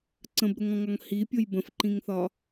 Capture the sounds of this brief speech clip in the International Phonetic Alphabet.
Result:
ǀə̃bɾʊŋɔ̃ŋɒŋ hipʲʊj bə̃fǃĩŋθɒ

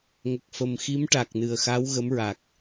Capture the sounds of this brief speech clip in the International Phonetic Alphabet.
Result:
ŋə˨˩k̚fə˨˩mxi˧˥m ʈa˨˩k̚nɨ˨˩ə̯xa˧˥w ɣə˧˥mɹa˨˩k̚

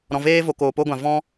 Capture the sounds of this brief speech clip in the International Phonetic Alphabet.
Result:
ɾɔ̃˨veː˦vo˨koː˨ po˦ɡʷã˨ vɔ̃˦

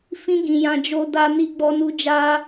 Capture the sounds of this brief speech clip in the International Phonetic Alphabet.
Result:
fĩ˦ɡĩ˧ jã˧d͡ʒo˧ da˧ ni˦ɡ͡bɔ˦nu˦ d͡ʒa˦

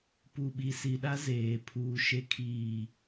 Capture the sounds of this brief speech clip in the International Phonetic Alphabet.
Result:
pu˨ɓi˨si˨ɗa˦ zeː˨ pʰuː˨ʃe˨kʰiː˨

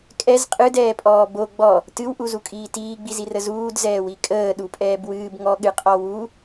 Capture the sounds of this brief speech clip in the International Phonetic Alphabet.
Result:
kʼɛz qʼɨdɛːpʼɔː bo ɡ͡bɔ | tɨwʔuzukʼiː tiːɡ͡bizirə zuːdzɛːwi kʼəːɗupʼɛːb wɨːbŋɔɠɨqʼɔ wu

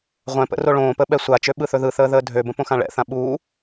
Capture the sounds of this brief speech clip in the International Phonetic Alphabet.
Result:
ʁʷɛ̃pə̰ roɭõːpəː ɓɛsʷat͡ʃø ɓɯθɵðɯθəː ðəːdʱøbə̃ põxãɭɛ̰θã ɓuː

